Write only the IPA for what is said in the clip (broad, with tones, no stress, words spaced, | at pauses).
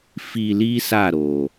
fi˧li˦ sa˦˨ɾo˨